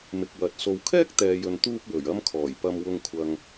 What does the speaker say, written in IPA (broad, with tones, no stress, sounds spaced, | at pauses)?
m ɪ˧ k̚ w ɐ˨ t̚ s o˨ w kʰ ɛː˥ k̚ t̪ ɛː˨ j ɵ˨ n t̪ uː˥ p̚ w ɵ˨˩ ɥ ɐ˥ m kʰ ɔː˨˩ j p ɐ˨ m w ʊ˨ ŋ kʷʰ ɐ˨ ŋ